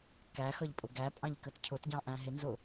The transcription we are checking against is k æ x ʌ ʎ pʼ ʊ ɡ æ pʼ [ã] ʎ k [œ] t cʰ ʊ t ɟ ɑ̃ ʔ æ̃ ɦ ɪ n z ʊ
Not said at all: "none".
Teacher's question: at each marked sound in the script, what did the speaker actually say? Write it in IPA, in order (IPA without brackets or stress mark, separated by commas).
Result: ɑ̃, ə